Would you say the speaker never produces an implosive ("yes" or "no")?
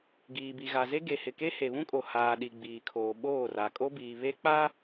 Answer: no